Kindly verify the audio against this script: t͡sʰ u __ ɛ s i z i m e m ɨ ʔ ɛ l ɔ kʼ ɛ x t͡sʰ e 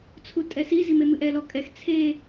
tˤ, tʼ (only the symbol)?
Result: tʼ